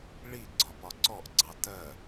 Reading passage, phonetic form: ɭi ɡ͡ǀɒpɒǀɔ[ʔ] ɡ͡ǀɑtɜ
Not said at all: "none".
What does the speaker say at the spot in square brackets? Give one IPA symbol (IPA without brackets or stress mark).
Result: ʔ